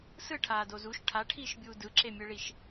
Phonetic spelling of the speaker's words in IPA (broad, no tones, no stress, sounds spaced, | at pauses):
s ɯ ʈʰ aː d o z u ʃ ʈʰ a ʈʰ iː ʃ bʲ uː d ɯ ǁ e mʲ ɯ ɭ i ʃ